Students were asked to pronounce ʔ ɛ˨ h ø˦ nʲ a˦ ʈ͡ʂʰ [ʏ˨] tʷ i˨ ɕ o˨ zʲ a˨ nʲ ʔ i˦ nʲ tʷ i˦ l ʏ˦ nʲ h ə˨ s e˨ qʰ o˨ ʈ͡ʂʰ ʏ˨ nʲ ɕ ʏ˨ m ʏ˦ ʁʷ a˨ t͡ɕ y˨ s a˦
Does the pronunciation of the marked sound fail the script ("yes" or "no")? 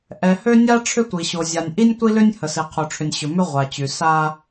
yes